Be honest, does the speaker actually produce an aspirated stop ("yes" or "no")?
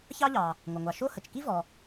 no